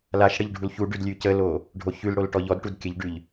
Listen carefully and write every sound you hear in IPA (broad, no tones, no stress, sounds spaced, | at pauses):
l a ʃ ɽ ə ʎ ɖʱ u l ç u ɖ ʉ d lʲ ʉ c ə l o | ɖʱ o ç ʉ l ɽ o l ʈ ɔ ʎ ɔ d ʈ u d kʲ ə ʎ ɖ ʉ ʎ